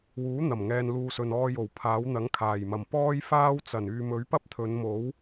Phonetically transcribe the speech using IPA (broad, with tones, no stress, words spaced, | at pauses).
wuː˨˥n̪ɐ˨˩m ŋɛː˨nluː˨ sɵ˨nɔː˧jo˨˩w pʰaː˨˥wn̪ɐ˨˥ŋ kʰaː˨˩jmɐ˨˩m pɔː˥jfaː˥w t͡sɐ˨˩nyː˨mɵ˨˥ɥ pɐ˥p̚t̪ʰɵ˨˧nmo˨˥w